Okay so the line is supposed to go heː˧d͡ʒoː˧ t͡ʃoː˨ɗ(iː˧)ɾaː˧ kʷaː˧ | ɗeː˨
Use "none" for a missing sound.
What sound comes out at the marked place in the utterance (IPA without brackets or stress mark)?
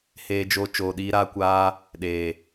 iː˧